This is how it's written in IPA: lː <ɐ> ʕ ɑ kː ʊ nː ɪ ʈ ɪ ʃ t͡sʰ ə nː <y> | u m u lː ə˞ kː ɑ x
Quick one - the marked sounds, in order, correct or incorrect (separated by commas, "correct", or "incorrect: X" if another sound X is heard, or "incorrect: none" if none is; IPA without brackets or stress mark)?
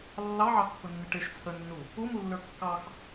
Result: incorrect: ɑ, incorrect: u